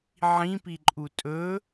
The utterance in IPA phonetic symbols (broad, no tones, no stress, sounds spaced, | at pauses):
ʕ ĩ p i ǃʼ u tʼ ɵ